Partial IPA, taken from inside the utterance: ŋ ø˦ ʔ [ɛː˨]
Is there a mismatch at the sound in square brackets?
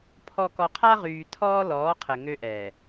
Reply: no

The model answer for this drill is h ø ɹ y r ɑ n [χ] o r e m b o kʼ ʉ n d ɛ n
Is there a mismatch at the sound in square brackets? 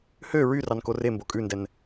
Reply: yes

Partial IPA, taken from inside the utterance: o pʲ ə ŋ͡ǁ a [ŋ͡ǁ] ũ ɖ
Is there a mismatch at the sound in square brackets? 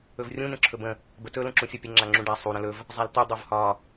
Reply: no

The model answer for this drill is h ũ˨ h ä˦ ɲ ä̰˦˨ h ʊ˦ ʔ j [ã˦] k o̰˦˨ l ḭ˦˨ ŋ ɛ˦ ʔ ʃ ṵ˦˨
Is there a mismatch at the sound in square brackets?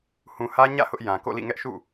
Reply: yes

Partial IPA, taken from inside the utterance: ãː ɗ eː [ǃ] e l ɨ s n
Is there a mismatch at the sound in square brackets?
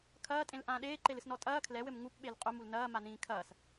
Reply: no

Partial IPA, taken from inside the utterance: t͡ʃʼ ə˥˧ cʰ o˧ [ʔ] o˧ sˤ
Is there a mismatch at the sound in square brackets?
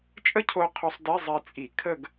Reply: yes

